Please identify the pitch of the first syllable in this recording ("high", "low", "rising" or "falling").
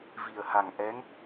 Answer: low